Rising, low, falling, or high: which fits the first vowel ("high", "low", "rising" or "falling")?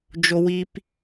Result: low